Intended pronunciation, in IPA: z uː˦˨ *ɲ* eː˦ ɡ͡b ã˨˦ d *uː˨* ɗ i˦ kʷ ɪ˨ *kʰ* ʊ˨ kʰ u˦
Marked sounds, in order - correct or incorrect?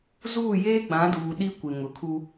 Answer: incorrect: j, correct, incorrect: ŋ

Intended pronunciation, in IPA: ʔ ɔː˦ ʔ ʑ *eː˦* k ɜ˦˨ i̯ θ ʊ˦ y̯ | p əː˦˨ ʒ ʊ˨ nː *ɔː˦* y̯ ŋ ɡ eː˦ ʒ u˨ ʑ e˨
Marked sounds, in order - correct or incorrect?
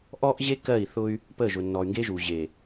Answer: incorrect: e˦, incorrect: ɔː˨

